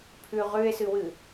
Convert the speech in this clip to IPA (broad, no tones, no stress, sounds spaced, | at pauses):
pʰ ʉ ʁ ʉ e̯ s ɨ w ɨ